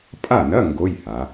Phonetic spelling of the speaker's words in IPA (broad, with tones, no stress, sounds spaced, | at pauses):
pʼ a˥˨ n ɐ˧˥˧ ŋ ɡ o˧˥˧ j h a˩˧